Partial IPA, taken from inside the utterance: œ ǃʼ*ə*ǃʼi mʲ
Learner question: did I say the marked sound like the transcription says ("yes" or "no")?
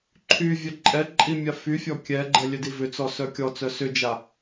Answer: no